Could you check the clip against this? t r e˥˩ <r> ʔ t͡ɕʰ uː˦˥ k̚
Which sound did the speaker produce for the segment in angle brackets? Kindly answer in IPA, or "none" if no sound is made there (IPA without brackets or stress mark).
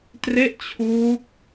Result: none